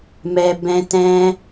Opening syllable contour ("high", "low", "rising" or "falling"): low